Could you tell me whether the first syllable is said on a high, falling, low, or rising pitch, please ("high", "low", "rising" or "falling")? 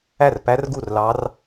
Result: falling